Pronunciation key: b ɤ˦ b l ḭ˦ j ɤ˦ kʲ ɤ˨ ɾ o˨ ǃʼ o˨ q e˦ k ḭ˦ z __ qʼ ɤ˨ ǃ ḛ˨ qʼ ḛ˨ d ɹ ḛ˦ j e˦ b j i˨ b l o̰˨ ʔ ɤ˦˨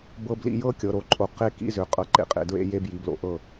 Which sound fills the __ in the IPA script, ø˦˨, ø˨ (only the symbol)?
ø˨